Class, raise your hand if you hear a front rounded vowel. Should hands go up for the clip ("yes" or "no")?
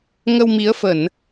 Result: no